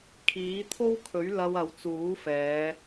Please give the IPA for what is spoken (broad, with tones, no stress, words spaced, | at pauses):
kʰiː˨˥t̪ʰo˥wkʰɵ˨˥ɥ lɐ˧w ɐ˨wt͡suː˨˥ fɛː˨˧